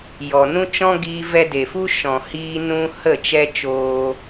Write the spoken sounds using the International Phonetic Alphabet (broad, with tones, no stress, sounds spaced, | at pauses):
j ɔ˨ n ũ˦ t͡ʃ ɔ̃˦ ɡ iː˦ v ɛ˧ d e˨ f u˦ ʃ ɔ̃˨ h iː˧ n ũ˦ h ə˦˨ t͡ʃ ɛ˦ t͡ʃ oː˧